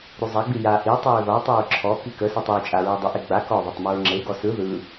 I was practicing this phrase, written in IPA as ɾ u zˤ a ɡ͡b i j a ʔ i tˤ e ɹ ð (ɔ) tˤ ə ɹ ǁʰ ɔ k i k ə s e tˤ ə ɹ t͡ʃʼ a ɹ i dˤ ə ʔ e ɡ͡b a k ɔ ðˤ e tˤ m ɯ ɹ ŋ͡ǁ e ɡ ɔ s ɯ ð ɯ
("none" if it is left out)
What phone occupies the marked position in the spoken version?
ɔ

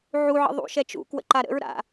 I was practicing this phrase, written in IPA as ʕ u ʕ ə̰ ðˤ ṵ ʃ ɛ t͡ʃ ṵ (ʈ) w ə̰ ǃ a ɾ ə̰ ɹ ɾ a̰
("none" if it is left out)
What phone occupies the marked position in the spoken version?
k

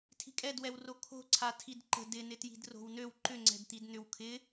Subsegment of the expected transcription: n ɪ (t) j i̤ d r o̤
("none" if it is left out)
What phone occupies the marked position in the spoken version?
t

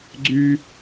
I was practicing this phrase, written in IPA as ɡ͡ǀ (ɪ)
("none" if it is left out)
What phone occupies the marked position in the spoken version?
y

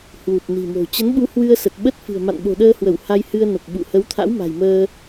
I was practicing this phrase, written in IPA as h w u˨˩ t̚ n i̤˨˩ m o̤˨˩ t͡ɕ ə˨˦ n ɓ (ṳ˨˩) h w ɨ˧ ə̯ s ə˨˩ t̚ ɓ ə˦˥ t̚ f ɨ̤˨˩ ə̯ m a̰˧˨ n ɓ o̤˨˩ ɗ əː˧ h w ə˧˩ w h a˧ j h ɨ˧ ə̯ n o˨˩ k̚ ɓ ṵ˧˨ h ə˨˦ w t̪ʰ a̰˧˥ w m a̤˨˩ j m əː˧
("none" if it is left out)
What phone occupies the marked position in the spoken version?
u˨˦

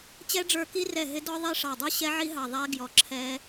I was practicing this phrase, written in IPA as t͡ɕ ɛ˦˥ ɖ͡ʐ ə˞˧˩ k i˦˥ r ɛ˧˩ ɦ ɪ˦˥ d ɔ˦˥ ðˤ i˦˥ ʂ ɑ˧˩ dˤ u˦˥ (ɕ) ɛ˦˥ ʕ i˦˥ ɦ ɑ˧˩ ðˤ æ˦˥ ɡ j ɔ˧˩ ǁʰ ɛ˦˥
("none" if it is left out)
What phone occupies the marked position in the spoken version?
ɕ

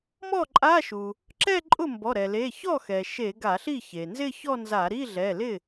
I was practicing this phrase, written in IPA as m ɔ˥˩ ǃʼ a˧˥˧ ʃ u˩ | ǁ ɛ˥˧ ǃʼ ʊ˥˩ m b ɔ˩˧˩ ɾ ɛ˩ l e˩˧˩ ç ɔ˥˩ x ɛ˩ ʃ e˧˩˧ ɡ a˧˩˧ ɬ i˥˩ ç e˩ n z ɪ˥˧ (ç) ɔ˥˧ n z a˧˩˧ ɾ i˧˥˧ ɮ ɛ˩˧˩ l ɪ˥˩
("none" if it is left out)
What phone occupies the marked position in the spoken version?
ç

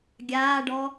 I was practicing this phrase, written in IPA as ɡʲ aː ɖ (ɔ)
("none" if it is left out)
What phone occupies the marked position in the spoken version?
ɔ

